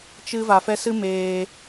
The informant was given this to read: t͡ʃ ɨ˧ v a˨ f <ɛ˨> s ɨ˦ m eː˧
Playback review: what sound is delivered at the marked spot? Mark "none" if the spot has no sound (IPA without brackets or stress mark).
ɛ˧